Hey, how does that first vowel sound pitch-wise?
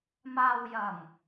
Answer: low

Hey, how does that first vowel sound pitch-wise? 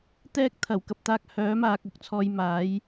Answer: high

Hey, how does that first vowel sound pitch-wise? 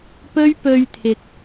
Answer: high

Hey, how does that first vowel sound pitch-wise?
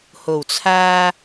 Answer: low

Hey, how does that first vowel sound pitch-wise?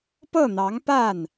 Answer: falling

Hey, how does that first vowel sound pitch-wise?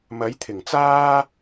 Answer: rising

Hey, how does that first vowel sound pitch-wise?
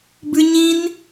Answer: high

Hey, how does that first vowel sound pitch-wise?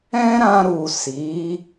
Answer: high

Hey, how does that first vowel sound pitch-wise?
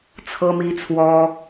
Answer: high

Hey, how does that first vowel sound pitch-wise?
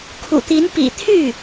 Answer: low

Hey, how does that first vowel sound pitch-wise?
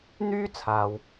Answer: high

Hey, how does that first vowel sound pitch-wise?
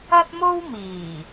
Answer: high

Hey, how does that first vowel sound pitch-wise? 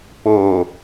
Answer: low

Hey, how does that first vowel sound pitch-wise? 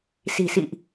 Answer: low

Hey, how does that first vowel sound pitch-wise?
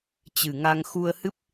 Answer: low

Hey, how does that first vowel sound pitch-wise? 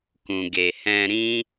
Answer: low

